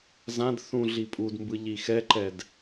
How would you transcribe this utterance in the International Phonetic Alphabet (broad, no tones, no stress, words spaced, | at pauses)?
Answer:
zãd θũ ɮipʼudmbɯ ʎixɛǃɛd